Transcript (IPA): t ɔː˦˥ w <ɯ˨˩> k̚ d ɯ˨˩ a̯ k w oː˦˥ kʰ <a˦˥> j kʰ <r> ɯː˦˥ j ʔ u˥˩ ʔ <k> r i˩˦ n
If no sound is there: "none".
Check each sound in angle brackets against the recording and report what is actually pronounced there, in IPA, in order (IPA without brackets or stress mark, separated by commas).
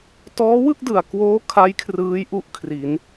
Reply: ɯ˥˩, a˦˥, r, kʰ